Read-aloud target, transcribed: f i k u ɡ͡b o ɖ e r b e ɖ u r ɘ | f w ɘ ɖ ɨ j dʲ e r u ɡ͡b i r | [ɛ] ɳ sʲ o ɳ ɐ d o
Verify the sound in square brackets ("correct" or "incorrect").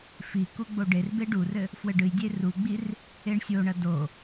incorrect